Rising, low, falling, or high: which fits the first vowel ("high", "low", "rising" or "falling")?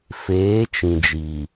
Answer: rising